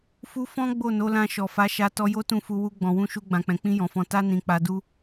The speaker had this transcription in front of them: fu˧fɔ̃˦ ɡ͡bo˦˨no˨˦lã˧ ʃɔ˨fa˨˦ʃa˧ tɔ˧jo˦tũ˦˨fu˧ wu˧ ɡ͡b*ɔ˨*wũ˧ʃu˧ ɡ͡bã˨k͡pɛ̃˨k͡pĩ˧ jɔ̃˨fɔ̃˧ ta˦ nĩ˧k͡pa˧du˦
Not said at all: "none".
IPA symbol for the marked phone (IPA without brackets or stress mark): ɔ̃˨